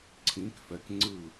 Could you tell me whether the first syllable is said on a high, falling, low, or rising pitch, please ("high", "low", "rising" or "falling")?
rising